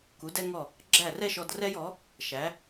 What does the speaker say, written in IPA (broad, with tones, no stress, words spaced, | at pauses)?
ku˩˥dɛ˥ŋɔ˥˩ | ɡ͡ǁæ˥˩rɛ˥ ʃɔ˧drɛ˥jɔ˩˥ | ʃæ˩˥